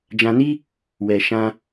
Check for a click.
absent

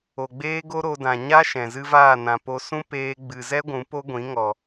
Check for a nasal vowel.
present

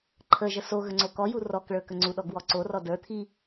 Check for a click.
present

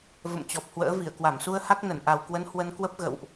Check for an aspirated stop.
absent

